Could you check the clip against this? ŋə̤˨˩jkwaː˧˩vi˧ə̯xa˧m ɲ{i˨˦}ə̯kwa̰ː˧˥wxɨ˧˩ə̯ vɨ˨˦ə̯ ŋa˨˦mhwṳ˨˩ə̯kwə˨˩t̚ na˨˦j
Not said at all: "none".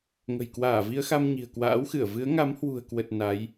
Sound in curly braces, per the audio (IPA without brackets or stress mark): i̤˨˩